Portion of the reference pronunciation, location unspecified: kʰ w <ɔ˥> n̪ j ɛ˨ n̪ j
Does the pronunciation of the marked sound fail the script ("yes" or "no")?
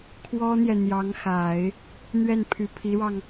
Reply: no